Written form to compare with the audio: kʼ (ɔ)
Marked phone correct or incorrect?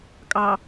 incorrect